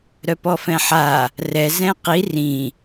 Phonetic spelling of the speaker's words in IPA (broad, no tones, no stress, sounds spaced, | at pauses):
ɾ œ p ɔ f ɛ̃ ħ a | r ɛ z ɛ̃ q i r ĩ